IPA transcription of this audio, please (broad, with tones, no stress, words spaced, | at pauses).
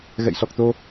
ɣɛ̰˧˨jsɔ˨˩k̚t̪o˧